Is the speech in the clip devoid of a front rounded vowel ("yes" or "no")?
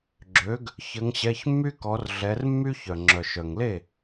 no